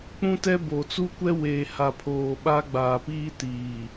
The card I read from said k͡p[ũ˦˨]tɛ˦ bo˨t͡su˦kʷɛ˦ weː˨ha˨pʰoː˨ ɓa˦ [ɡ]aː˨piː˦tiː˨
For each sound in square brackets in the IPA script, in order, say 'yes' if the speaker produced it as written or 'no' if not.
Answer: no, no

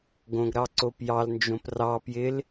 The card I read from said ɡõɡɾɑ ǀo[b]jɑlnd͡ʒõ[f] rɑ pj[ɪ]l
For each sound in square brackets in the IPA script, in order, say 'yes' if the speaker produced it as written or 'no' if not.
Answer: no, no, yes

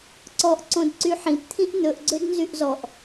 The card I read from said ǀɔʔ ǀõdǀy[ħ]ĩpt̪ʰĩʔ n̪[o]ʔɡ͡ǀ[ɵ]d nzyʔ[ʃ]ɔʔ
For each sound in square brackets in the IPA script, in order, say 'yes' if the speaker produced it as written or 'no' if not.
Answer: yes, no, no, no

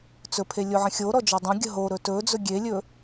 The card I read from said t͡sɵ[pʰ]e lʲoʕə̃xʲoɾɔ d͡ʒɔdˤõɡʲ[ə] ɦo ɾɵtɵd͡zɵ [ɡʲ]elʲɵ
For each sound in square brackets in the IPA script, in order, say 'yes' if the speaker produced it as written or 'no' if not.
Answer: yes, yes, yes

